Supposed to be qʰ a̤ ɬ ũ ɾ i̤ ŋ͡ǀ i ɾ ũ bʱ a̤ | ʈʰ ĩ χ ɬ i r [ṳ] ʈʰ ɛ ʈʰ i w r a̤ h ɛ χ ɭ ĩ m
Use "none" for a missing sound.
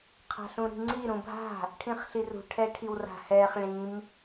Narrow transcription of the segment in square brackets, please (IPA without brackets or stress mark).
ṳ